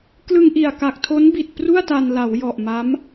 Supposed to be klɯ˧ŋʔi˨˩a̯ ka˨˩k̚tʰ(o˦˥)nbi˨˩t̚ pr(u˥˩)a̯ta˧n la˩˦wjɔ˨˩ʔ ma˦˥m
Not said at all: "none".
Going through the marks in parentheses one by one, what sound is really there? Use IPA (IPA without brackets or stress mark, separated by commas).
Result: o˦˥, u˥˩